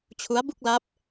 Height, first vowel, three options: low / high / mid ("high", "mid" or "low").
high